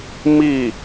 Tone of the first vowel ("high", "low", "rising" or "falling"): falling